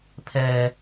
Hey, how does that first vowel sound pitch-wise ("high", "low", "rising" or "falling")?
high